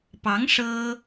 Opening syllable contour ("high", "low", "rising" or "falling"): rising